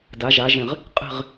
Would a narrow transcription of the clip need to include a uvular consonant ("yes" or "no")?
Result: yes